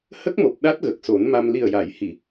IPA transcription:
h ə˦˥ k̚ m o˨˩ p̚ ɗ a˦˥ t̚ ɣ ə˨˩ k̚ s o˨˩˦ n m a˧ m l i˨˩ ə̯ j a˨˩˨ j h i˨˩˨

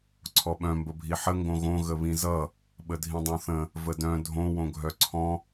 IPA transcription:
ǀʰ ɔ ɓ œ̃ m b ə bʱ i ħ ə ŋ ɡ õ ɣ õ ɣ ə β ĩ z ʌ | ɓ ə dʱ ĩ dˤ õ θ ə̃ | v ə d œ̃ dʱ õ w õ ɡʱ œ ǀʰ ɔ̃

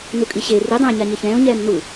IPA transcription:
n u kʼ i ɕ e r i dˤ ɛ̃ ɪ̯ ɲ a ɲ e ç ɛ̃ː ʊ̯ ɲ ɛː m n u

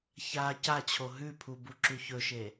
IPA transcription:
ç a c a t͡ɕʰ o ɦ ʉ pʰ u b u ǁ ʉ ç ɵ ʃ e

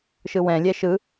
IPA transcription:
ʃ ɯ w ɛ̃ lʲ ɛ ʃ ɯ

